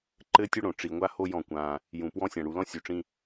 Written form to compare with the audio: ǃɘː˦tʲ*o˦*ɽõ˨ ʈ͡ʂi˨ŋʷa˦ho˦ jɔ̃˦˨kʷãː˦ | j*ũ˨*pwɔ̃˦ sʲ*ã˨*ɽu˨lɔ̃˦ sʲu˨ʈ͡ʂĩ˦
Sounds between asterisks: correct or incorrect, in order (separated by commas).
correct, correct, correct